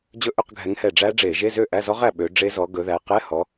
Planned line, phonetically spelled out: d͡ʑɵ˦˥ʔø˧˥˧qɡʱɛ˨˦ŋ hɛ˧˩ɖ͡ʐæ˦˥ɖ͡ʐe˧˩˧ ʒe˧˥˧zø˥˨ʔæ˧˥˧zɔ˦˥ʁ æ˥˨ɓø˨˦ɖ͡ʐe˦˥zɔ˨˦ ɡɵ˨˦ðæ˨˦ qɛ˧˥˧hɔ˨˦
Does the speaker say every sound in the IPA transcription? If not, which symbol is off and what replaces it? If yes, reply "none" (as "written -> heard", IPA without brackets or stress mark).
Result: none